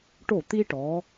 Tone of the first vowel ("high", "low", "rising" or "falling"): falling